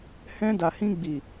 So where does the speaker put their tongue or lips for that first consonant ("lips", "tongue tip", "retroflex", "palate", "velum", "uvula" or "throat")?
throat